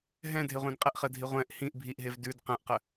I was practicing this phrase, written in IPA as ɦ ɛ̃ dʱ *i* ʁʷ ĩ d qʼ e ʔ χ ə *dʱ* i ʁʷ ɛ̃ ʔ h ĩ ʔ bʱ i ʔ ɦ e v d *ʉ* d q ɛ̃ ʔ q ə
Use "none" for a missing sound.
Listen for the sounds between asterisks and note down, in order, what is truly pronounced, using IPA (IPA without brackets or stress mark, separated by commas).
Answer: e, dʱ, ʉ